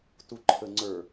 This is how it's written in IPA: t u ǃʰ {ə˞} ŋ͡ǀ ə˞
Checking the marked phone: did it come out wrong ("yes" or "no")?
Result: yes